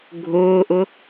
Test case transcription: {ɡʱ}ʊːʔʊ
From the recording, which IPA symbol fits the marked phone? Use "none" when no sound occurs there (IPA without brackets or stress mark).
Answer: ɡʱ